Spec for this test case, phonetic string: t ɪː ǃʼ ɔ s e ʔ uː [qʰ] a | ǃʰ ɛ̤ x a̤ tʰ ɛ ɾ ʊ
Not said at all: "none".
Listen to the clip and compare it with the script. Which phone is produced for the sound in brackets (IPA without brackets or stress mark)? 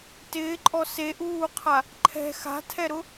qʰ